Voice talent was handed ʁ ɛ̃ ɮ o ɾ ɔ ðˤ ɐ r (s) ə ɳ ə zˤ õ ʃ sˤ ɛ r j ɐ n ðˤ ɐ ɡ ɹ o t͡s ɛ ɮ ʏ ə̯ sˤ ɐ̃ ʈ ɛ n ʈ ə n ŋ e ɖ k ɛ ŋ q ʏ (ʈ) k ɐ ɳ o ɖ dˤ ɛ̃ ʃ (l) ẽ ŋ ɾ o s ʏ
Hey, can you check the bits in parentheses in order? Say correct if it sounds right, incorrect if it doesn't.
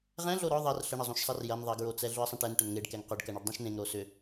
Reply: incorrect: ɬ, incorrect: ɖ, incorrect: n

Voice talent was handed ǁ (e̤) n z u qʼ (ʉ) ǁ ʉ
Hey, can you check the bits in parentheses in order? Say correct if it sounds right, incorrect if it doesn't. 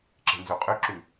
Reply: correct, correct

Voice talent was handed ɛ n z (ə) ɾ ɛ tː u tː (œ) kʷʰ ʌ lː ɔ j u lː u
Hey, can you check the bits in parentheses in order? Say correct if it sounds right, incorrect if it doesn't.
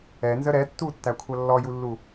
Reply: correct, incorrect: æ

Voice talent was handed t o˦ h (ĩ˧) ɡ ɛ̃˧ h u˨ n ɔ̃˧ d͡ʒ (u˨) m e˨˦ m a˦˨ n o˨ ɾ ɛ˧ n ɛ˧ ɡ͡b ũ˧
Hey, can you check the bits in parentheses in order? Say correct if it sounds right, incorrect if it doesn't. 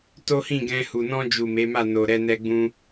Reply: incorrect: ĩ˦˨, correct

